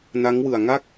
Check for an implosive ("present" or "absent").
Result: absent